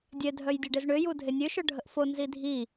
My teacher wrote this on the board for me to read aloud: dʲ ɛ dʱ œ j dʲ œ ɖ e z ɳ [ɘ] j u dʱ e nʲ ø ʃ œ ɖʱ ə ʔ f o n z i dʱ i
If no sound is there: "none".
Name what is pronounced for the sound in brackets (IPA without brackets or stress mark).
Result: ø